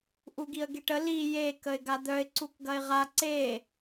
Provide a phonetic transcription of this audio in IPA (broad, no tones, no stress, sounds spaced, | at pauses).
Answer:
ʔ u ɡ i ə̯ ɡ e ʈ ə l i j e k ə ɪ̯ ɡ a d̪ œ ɪ̯ ǀ u k ɡ ɐ ɪ̯ ʁ a ǀ e